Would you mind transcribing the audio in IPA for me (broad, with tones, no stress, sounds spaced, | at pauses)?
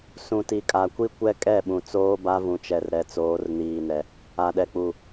s ũ˨ t i˨ kʼ a˨ kʷ i˦ kʷ ɛ˦ kʼ ɛ˦˨ ɓ ũ˨ t͡s oː˦ b a˦ v ũ˨ t͡ʃ ɛ˨ r ɾ ɛ˨ t͡s oː˨˦ r n iː˨ n ɛ˨ | a˨ ɗ ɛ˨ k͡p u˨